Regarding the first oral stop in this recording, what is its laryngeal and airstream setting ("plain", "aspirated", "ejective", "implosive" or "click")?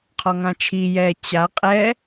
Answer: aspirated